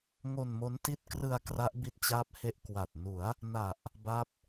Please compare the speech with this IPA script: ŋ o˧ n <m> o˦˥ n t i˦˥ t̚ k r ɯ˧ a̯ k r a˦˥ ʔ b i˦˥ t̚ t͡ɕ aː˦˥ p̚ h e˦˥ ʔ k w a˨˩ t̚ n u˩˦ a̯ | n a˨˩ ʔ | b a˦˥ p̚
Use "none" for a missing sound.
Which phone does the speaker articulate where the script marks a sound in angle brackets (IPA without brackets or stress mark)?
m